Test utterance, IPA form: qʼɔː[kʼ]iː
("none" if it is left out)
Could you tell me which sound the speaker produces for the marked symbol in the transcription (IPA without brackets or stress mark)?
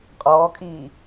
kʼ